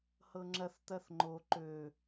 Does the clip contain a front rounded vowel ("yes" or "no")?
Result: yes